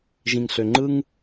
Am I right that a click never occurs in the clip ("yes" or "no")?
no